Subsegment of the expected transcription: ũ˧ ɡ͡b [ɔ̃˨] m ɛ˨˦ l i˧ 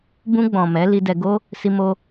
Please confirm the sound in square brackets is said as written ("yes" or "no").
yes